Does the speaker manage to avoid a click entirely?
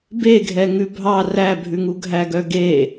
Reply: yes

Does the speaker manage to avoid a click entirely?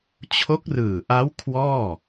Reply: yes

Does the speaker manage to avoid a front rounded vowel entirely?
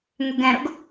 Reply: no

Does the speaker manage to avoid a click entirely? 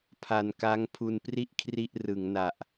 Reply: yes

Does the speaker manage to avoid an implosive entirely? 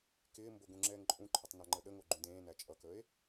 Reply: no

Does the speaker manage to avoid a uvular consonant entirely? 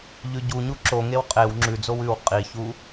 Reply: no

